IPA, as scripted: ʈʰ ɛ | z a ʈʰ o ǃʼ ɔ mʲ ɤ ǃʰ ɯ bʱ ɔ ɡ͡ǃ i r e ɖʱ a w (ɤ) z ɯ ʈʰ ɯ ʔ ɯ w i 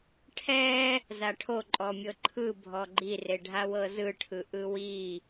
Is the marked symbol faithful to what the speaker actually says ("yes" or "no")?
yes